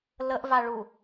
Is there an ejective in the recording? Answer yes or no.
no